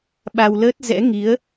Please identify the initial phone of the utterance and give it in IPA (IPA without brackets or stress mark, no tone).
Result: ɓ